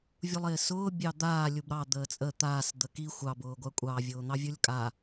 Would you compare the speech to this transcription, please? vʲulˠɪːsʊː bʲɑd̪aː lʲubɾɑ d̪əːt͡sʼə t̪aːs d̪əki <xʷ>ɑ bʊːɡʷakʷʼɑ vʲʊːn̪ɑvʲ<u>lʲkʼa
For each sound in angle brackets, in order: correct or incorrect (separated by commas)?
correct, correct